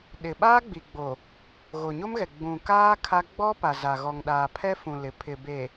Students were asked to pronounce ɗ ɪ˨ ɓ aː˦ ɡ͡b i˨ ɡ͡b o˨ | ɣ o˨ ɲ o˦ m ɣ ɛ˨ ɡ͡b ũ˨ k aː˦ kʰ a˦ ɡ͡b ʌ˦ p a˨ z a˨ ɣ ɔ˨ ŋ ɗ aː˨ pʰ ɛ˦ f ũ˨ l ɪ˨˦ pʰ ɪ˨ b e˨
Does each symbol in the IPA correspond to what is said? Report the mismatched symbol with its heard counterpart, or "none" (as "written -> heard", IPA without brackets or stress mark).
ʌ˦ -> ɔ˦